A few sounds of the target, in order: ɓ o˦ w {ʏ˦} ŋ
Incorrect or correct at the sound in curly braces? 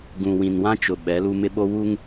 incorrect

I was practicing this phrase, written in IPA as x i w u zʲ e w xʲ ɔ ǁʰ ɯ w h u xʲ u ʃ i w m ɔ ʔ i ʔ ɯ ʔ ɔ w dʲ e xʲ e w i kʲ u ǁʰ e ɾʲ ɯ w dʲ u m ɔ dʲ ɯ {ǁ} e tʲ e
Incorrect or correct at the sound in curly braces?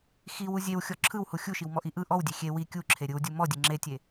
incorrect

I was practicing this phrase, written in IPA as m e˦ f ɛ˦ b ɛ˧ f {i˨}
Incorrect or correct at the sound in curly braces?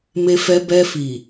correct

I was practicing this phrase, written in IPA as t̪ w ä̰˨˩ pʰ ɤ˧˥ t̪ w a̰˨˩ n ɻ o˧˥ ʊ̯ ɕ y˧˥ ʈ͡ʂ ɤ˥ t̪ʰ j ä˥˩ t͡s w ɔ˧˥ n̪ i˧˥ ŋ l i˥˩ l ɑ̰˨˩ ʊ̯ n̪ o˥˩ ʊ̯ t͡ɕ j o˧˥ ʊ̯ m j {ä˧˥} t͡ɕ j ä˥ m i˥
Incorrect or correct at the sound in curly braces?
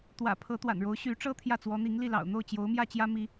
incorrect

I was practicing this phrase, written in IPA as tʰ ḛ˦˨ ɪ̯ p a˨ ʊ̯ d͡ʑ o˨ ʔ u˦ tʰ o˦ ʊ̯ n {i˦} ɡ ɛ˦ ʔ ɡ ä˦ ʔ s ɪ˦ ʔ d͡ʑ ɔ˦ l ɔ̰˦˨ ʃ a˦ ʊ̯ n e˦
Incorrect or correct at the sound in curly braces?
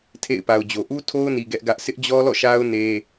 incorrect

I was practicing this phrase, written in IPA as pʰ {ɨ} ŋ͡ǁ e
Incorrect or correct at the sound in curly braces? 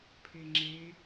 incorrect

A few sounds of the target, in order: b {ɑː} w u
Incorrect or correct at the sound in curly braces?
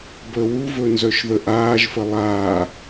incorrect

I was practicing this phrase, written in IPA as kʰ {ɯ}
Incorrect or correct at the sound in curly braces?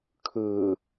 correct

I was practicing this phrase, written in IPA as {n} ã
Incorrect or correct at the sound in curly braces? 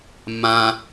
incorrect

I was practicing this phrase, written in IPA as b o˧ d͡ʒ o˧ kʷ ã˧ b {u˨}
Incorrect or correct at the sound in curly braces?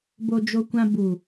correct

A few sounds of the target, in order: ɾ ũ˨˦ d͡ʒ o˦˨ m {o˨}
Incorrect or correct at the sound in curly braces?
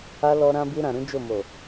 correct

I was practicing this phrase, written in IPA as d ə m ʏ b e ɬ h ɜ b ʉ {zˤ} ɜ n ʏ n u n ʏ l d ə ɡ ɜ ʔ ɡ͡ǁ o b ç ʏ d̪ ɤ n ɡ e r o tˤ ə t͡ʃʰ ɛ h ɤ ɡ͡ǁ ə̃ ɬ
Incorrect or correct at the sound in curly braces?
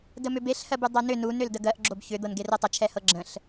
incorrect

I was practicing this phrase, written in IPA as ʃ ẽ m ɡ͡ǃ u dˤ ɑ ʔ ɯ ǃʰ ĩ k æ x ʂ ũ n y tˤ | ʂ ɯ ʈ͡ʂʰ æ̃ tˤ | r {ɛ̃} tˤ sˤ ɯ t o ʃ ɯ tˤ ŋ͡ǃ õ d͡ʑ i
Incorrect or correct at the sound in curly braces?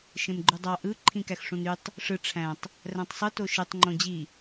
incorrect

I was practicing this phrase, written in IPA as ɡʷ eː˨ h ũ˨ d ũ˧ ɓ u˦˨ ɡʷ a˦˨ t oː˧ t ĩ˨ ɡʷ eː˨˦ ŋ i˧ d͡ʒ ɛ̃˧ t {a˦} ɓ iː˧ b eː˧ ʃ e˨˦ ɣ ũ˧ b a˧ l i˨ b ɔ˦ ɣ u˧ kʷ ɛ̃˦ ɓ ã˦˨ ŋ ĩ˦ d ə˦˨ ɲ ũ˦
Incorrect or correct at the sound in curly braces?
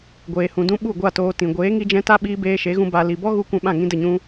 correct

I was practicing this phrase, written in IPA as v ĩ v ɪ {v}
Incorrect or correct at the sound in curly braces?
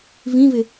incorrect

